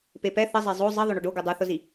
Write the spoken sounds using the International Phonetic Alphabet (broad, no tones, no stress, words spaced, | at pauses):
pepɛ θə zˤezˤo zˤɘ ðˤʏɳʏɖo ɡudˤuθʊzi